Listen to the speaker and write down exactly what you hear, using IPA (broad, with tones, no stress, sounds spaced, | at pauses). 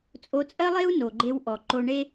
t͡sʼ o˧ t͡sʼ ɜ˥ lˠ e˥ u̯ n o˩ ɡ͡ǃ e˧ w ʔ ɔ˩ ǃ o˧ ɳ e˥